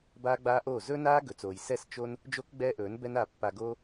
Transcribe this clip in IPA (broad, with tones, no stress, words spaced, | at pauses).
baː˦ɡ͡baː˦ʔoː˦˨ zɵ˦naː˦ ɡɵ˨t͡soː˨j sɛ˦˨s t͡ʃo˦n | d͡ʒo˦k ɡ͡bɛː˦ʔɵː˨˦n bɛ˦na˧ pːa˧ɡoː˦